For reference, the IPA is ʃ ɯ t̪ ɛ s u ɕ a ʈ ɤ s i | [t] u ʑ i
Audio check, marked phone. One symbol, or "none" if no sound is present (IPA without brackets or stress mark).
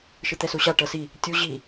tʲ